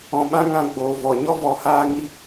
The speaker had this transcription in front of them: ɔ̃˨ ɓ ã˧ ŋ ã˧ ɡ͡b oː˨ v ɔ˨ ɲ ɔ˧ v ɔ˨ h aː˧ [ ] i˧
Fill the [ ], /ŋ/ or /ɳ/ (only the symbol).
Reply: ŋ